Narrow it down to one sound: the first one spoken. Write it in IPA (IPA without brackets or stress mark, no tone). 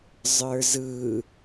zˤ